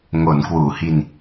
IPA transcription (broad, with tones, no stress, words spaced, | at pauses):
ŋo˩˦n kwuː˩˦hi˧n